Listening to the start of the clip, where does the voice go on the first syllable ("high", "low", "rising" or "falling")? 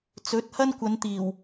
rising